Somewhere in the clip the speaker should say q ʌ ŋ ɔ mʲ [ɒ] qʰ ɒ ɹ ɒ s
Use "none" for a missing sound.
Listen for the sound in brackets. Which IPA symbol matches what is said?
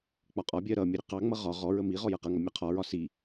ʌ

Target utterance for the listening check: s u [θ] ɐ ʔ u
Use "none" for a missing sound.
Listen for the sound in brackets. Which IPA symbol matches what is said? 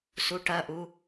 ʈ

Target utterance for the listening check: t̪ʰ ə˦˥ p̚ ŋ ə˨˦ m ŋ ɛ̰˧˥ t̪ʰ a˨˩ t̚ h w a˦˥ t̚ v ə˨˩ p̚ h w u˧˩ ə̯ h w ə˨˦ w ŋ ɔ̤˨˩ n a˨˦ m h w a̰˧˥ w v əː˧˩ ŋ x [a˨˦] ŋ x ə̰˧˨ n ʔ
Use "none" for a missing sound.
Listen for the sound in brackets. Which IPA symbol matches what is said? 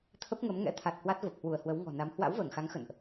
a˨˦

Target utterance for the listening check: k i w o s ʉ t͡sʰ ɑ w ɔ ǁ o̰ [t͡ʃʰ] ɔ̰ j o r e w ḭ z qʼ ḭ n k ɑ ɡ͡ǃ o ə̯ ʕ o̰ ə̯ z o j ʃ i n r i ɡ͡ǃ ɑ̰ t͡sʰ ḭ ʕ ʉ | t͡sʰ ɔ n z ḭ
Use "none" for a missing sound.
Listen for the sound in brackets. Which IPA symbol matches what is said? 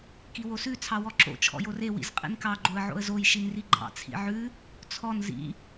t͡ʃʰ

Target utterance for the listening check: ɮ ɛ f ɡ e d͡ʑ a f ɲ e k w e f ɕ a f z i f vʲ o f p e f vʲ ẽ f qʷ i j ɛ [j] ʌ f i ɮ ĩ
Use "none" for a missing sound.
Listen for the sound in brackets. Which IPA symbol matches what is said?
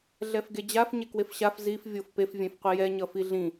ɲ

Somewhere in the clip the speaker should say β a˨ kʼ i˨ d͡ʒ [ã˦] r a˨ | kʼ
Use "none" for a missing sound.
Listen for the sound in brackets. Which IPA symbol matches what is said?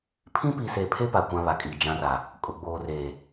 ã˦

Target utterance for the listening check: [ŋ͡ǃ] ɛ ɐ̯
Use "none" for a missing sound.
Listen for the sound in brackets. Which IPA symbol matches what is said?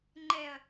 ŋ͡ǃ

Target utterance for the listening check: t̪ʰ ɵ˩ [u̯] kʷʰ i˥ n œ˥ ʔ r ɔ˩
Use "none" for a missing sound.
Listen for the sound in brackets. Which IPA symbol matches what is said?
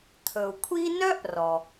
u̯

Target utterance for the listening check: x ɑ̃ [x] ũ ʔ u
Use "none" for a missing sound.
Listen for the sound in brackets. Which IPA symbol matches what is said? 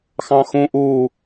x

